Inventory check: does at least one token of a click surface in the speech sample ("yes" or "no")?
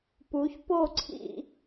yes